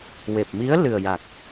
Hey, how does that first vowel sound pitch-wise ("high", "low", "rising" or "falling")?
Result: low